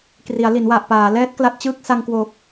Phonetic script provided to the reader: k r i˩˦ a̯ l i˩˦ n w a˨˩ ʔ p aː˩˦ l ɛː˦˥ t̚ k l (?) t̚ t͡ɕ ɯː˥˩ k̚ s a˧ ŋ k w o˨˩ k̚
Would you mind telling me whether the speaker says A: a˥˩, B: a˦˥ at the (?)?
B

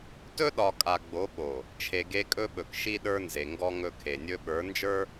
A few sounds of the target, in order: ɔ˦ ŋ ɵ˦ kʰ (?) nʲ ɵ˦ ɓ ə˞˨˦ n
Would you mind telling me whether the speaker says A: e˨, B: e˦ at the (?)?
A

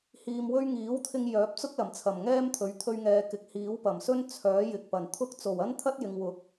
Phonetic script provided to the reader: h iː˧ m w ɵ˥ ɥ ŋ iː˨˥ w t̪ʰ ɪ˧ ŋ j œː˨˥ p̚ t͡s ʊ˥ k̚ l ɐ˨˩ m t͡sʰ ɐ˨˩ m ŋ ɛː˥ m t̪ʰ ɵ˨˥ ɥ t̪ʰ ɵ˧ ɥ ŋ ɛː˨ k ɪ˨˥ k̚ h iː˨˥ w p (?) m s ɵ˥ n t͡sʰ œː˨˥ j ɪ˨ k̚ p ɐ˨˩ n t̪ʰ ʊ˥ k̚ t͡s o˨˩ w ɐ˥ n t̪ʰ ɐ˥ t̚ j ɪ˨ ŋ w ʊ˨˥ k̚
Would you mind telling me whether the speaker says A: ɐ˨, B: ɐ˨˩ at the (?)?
B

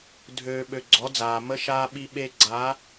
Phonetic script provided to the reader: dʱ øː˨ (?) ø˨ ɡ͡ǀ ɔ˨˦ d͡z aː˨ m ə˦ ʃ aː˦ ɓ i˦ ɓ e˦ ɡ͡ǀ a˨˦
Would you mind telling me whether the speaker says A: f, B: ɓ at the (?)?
B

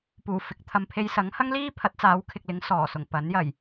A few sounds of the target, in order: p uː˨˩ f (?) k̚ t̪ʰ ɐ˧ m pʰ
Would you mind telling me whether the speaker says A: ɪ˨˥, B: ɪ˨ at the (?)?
A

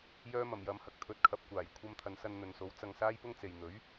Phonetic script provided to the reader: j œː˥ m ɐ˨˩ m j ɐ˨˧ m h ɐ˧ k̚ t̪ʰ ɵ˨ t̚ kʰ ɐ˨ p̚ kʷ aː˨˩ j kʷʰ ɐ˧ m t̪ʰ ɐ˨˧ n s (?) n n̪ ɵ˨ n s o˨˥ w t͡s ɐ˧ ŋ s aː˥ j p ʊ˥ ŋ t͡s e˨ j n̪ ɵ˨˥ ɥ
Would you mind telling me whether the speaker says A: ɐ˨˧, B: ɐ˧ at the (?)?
B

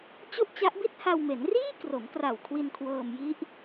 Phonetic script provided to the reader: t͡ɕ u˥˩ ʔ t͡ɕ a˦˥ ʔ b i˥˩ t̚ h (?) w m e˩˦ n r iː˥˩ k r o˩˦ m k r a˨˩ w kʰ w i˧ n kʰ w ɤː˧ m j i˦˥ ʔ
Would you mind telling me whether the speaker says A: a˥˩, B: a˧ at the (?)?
B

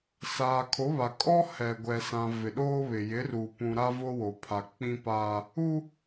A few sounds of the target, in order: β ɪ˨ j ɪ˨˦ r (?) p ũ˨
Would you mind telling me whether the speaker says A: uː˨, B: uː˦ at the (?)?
A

